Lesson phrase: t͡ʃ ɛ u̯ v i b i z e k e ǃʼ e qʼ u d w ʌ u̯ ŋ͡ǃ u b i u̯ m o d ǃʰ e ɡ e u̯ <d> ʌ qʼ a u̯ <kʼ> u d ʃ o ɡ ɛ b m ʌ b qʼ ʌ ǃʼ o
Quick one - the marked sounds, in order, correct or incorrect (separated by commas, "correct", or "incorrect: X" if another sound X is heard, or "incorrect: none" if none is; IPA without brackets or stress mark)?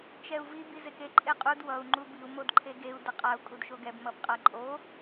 correct, correct